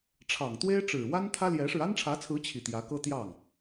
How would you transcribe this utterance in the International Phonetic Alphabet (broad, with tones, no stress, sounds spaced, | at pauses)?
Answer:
ʈ͡ʂʰ ɑ˨˩ ŋ t̪ w e˥ ɪ̯ ʈ͡ʂ ɻ̩˨˩ w a˥ n t̪ʰ ä˥ l j ɛ˧˥ ʂ ɻ̩˧ a˥ n ʈ͡ʂʰ ä˧˥ t͡sʰ ɹ̩˧˥ t͡ɕʰ i˥˩ t̪ j ä˧˥ k ɤ˥ t̪ j ɑ˥˩ ŋ